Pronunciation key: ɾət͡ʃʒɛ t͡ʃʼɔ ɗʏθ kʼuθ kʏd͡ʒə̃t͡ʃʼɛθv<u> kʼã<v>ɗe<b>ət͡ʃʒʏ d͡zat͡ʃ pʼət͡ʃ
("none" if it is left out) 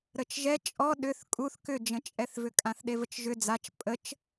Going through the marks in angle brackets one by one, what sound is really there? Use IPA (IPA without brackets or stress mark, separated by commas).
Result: ʏ, θ, v